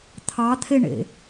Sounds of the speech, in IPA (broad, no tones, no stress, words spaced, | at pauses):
t̪ʰɑt̪ʰeɳḛ